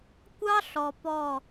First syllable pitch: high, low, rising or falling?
high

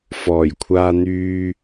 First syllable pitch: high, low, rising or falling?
low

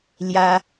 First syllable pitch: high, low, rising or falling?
high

